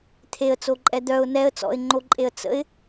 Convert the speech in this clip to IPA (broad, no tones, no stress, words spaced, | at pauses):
t̪ʰeə̯t͡soǃʼɛ d̪œʊ̯ nɛə̯ t͡sɔ̰ɪ̯ŋ͡ǃoǃʼeə̯ t͡sə̰ɪ̯